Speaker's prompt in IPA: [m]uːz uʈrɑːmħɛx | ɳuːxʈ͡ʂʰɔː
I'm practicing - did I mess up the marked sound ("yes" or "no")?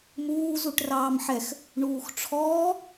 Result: no